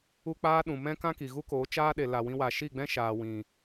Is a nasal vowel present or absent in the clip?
present